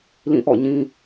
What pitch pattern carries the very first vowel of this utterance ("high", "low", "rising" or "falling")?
falling